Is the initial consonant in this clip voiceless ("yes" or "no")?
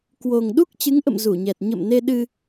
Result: yes